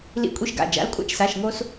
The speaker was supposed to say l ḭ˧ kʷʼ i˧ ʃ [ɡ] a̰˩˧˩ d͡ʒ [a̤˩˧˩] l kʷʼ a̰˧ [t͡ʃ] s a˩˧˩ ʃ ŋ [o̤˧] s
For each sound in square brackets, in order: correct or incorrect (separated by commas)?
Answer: correct, incorrect, correct, incorrect